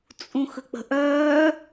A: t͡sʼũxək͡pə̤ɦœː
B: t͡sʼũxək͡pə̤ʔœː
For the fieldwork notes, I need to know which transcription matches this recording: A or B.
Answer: B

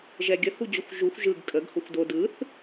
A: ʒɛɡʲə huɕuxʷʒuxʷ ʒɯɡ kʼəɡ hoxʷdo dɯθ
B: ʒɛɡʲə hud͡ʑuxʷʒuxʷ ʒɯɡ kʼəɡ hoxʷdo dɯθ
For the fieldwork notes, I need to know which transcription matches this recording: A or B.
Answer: B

